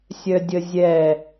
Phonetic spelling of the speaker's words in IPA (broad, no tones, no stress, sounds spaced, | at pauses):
sʲ œ dʲ ə zʲ ɛ